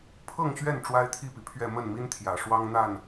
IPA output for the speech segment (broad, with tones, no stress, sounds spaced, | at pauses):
pʰ ɤ˥˨ ŋ ɕ ɥ ɛ˥˨ n ʈ͡ʂ w a˦ ɪ̯ t̪ʰ i˥˨ p i˩ pʰ ɥ ɛ˥˨ m ə˥˨ n m i˦ n t̪ʰ j ä˨˩ ʂ w ɑ˦ ŋ n̪ a˥˨ n